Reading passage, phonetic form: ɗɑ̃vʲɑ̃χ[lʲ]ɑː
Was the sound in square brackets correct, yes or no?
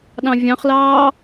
no